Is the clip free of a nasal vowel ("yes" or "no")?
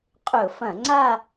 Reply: no